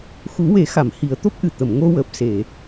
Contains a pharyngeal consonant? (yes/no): no